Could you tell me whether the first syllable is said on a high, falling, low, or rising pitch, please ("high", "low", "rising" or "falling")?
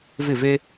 falling